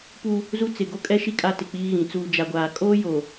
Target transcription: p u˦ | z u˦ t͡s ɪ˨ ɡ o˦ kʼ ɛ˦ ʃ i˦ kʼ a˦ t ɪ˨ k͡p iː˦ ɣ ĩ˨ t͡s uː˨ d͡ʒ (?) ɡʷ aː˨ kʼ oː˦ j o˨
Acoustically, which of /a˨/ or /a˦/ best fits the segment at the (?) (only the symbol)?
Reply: a˨